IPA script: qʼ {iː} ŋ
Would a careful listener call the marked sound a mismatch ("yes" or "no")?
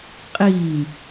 no